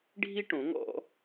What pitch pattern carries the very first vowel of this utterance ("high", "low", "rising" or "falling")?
high